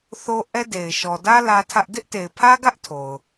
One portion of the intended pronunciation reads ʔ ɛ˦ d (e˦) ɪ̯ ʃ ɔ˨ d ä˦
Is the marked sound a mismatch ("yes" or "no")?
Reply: yes